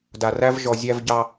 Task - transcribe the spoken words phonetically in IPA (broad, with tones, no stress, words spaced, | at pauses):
da˨ræ˦v ʒɔ˨zʲæ˦v ɟɑ˦